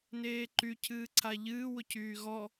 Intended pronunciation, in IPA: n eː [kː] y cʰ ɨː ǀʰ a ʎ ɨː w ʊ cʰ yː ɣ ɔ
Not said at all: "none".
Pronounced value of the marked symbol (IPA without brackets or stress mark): ǃ